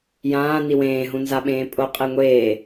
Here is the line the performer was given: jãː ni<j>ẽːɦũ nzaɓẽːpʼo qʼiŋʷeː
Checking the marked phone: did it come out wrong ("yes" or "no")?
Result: yes